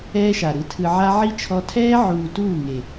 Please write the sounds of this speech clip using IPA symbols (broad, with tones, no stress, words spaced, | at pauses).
ɛː˦ʃa˨ɾɯ˧tʰɯ˧ ʕa˦ ʕi˦ t͡ʃʰɔ˧ tʰɛː˦ʕuː˨ tuː˦˨ŋe˨